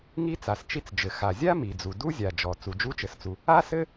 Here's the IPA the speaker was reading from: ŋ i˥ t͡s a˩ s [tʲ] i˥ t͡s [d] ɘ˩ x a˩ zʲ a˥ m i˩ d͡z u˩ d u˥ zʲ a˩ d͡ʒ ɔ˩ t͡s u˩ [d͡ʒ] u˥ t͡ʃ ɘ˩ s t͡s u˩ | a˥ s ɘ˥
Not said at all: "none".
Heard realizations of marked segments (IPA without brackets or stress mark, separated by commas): t͡ʃ, d͡ʒ, d͡ʒ